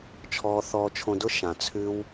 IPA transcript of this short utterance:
t͡ʃʰ ɔː˧ θ ɔː˧ t͡ʃʰ õ˧ d ʊ˦ ʃ ã˨ t͡sʰ ʉ˦ w

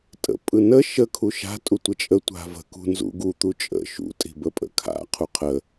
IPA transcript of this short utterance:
tʼ ə̰ pʼ ɯ n ə ʃ ə kʰ u ʃ a̤ tʼ u tʷ ə t͡ʃʼ ə tʷ a̤ v ə̤ k ṳ n z ṵ ɡ u t̪ u t͡ʃʼ ə̰ ʃ ṵ tʼ i̤ b ə pʼ ə̰ kʰ a̰ qʰ u qʰ ə

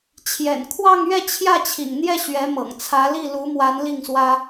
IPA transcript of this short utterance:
t͡ɕʰ j ɛ̰˨˩ n kʰ w ɑ˥˧ ŋ ɥ ɛ˥˧ t͡ɕʰ j ä˥˩ t͡ɕʰ ḭ˨˩ ŋ n̪ j ɛ˥˩ ɕ ɥ ɛ˧˥ m ɤ̰˨˩ ŋ t͡sʰ ä˧˥ l i˥˩ l u˧˥ m w a˧˥ n l i˥˩ ŋ s w ä˥

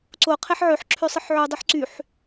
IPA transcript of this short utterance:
ǀ o qʰ e ħ ʕ ø ħ ǁʰ ø sˤ ɯ ħ ʕ y dˤ y ħ ǀ y ħ

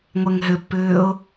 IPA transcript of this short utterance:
ŋʷ ɛ ŋ ɦ ʏ pː ʏː ʊ̯

